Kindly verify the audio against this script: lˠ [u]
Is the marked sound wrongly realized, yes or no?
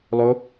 yes